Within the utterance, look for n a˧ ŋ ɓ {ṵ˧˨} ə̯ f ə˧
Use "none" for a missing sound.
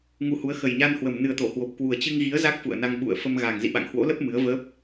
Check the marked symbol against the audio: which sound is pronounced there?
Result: ṵ˧˨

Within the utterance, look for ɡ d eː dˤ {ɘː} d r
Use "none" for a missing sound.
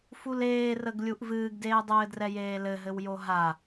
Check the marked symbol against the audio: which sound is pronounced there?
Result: ɘː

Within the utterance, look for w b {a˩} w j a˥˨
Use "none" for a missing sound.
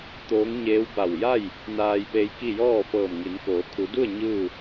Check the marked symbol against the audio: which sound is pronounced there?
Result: a˧˩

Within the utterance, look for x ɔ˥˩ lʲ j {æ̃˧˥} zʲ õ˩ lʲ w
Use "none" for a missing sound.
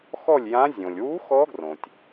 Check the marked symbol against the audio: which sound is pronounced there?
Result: ã˧˥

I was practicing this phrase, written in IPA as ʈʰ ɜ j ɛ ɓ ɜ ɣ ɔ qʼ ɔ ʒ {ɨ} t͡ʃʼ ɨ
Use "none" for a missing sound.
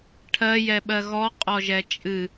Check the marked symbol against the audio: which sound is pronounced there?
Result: ɛ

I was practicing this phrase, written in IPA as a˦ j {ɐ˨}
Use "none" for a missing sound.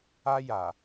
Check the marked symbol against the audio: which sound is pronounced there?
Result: a˨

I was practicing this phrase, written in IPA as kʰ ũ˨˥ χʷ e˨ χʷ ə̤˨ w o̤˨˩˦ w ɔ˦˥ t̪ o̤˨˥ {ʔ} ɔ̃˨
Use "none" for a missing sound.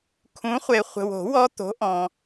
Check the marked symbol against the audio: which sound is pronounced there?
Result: ʔ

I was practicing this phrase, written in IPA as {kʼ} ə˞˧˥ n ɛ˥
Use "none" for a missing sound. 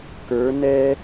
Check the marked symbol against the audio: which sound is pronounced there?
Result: k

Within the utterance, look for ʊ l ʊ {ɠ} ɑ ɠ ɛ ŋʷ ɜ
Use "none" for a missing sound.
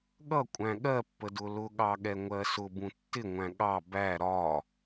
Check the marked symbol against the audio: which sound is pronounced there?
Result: ɠ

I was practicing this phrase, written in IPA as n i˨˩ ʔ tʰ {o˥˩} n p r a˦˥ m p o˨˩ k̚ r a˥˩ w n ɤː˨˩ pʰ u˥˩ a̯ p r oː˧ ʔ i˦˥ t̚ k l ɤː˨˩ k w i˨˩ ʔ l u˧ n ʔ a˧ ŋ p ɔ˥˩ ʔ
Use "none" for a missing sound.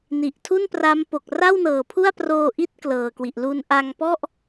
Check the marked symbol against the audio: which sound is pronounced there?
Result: u˥˩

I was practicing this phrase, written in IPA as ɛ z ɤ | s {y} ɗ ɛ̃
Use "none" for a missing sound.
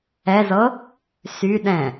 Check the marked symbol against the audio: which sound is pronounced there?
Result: y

